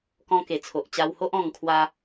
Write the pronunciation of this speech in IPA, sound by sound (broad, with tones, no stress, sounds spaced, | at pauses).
k ɔ̃˧ k e˨˩ t͡sʰ o˨ ʔ t͡ɕ a˧ w h o˦ ʔ ɔ̃˧ ŋ kʰ w a˦